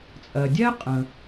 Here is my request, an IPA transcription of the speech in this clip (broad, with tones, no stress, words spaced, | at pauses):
t͡sʼɜ˩dʲɛ˥qʼə̃˩